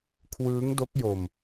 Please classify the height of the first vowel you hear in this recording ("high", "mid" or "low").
high